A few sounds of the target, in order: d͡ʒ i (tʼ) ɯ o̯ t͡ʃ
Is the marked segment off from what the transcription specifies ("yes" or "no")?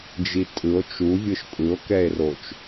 no